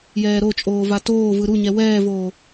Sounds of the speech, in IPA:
j ɛː ɾ o t͡ʃʼ oː v a t oː v ɯ ɾ u ɲ ɛ w ɛː v oː

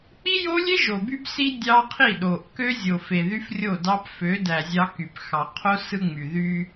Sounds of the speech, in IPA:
k͡p i˦ j o˦ lʲ e˦ ʒ o˨ b y˦ b s i˦ dʲ ɑ˦ qʰ i˦˨ ɗ o˨ ʔ k ø˦ zʲ o˨ f e˨ ð y˦ f rʲ o˦˨ d ɑ˦ p f ø˨˦ d æ˨ zʲ ɑ˦ k y˨ p x ɑ˨ qʰ o˦ s ɯ˦ ŋ͡m y˨ ð y˦

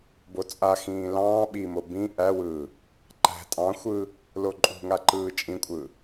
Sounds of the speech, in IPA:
b o t͡sʼ a x ĩː l ɑ̃ː ɓ i m o b ĩ ʔ æ w ɯː | ǃ æ̤ tʼ ɑ̃ xʷ ɯː | l o ǃʼ ṳ ŋ a ǃ ɯː t͡ʃʼ ĩ kʷʼ ɯː

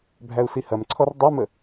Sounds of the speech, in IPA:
bʱ æ u̯ s i h ɐ m ǀʰ ɔ r dˤ ɐ m ə

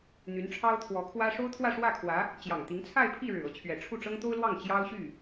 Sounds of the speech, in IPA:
n̪ y˧˥ n ʈ͡ʂʰ ɑ˥ ʊ̯ t̪ʰ w ɔ˧˥ kʰ w ä˥ ʂ o˥ ʊ̯ t̪ʰ w ä˥˧ ʂ w ä˥˩ kʰ w ä˧˥ | t͡ɕ j ɑ˨˩ ŋ t̪ i˧˥ ŋ t͡sʰ a˥˧ ɪ̯ pʰ i˥˩ ɻ ɻ̩˨˩ ɤ˧˥ t͡ɕʰ ɥ ɛ˨˩ ʈ͡ʂʰ u˥˩ ʈ͡ʂ ɤ˥ ŋ t̪ o˥ ʊ̯ l w ɑ˥˩ ŋ t͡ɕ j ɑ˥ ʊ̯ ɕ y˥˩

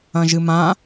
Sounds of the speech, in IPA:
ɐ̃ ʒ ɨ m ã

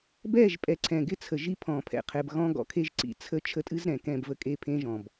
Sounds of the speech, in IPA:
b ɛː˦˨ ʒ pʼ ɛ˨ ǀʰ ɛ̃˨ ɡ ɪ˦ t͡sʰ ə˨ ʒ i˦ pʰ ɔ̃ː˨ pʰ ɛ̰˨ qʰ ɛ˨ b ɣ ɔ̃˦ ɡ ɔ̰˨ kʰ e˦ ʒ ǀ ḭ˨ t͡sʰ ə˦ t͡ʃʰ ə˦ tʼ ɨ˦ z ɾ ɛ̃˨ k ɛ̃˦˨ b v ə˦ kʼ e˦˨ pʰ ẽː˦ ʒ ɔ̃˨ b

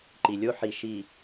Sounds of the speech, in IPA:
ǃ i˨ lʲ o˦ ħ i˨ ʃ i˨

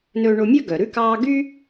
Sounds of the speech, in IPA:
n ɵː˧ ɳ o˧ mʲ œ˦ ɡ œ˨ ɾ ʉ˦ k ɑː˦ ɡ y˦

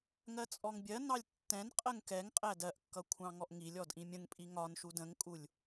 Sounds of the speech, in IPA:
ŋ ɜ t͡sʼ ɔ ŋ bʲ ɜ n ɑ lʲ tː ɛ̃ n qʼ ɜ ŋ k ɛ ŋ qʼ æ d ɜ ʔ kː ʌ kʷʰ ɑ̃ ŋ ɔ ʔ ŋ i lʲ ɔ d ʔ ĩ mʲ ə̃ ŋ pʼ i ŋ ɒ n ʃ u d ə̃ ŋ kʼ u lʲ

